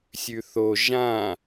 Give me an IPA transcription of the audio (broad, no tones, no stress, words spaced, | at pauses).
sʲʉθo ʒã